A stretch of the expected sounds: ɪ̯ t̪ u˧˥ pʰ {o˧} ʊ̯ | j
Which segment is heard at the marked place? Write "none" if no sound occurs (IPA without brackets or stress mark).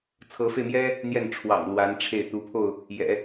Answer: o˧